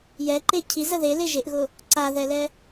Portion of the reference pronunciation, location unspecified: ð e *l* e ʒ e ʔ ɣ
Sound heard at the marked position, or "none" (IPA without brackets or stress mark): l